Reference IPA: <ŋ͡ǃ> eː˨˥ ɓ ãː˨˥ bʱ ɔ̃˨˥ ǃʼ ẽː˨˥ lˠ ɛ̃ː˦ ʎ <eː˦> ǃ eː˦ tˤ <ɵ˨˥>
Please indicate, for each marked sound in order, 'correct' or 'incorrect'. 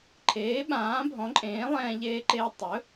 incorrect, correct, correct

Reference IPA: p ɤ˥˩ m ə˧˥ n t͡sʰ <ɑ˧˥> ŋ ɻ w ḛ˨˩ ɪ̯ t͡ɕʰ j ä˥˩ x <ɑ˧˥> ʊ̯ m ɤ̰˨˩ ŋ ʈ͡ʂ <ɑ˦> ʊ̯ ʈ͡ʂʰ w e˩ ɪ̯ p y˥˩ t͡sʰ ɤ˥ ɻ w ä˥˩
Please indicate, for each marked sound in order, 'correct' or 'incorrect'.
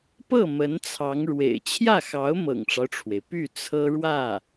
correct, correct, correct

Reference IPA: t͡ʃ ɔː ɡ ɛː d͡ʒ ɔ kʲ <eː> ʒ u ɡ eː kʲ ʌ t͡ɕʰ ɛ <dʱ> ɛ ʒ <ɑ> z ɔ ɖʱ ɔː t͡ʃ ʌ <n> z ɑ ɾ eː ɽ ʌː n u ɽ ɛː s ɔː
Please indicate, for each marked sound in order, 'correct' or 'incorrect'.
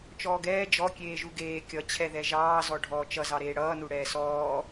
correct, incorrect, incorrect, incorrect

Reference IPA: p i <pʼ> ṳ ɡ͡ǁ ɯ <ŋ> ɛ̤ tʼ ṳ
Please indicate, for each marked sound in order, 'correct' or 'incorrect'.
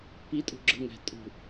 incorrect, correct

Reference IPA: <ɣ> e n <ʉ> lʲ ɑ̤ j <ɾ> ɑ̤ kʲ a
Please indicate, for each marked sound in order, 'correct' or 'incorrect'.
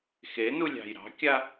incorrect, incorrect, correct

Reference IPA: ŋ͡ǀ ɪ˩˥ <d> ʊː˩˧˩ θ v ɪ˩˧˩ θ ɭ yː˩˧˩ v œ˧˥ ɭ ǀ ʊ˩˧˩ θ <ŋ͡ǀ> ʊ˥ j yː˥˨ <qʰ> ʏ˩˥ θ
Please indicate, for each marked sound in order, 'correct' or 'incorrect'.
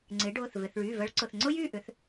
incorrect, correct, incorrect

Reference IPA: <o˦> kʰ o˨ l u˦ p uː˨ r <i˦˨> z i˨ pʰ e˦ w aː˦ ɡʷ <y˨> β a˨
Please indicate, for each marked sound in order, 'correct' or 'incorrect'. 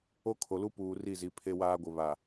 correct, correct, incorrect

